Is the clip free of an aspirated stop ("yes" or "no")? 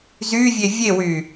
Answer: yes